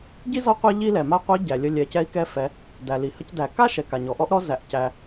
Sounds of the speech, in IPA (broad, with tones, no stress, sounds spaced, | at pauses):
ɟ i˥ z ɔ˥ qʷ ɛ˥ ʎ i˥ l ɛ˩ m a˥ qʷ i˧˥ ɟ æ˩ lʲ ə˧ lʲ ɛ˩˧ c ɛ˧˥ i̯ k ɛ˧˥ f ɛ˩˧ | d æ˩ l i˩ h ə˧ c d æ˩ k a˥ ʃ ɛ˩ k a˩ ɲ ɔ˩ ʔ ɔ˥ ʔ ɾ ɔ˧˥ z æ˩ ʔ c æ˩